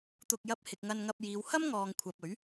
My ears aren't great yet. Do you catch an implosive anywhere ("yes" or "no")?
no